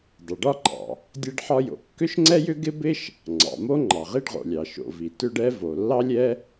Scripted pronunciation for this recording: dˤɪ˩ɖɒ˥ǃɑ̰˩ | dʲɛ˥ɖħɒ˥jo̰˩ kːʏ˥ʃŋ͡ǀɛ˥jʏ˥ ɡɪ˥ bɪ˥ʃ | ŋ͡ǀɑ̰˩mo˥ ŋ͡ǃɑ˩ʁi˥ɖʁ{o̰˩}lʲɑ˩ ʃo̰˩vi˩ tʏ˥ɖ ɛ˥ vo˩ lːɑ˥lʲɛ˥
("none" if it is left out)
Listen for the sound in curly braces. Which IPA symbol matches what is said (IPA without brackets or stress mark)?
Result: o̰˩